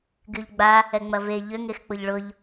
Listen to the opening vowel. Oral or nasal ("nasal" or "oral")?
oral